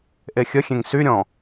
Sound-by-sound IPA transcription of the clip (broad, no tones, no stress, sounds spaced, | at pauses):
ʔ e xʲ ə xʲ ẽ ŋ s y ɾʲ ɔ̃